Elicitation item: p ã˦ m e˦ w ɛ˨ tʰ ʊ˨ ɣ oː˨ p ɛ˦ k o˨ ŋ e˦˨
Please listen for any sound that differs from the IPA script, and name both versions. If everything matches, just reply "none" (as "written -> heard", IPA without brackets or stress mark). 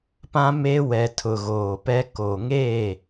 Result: none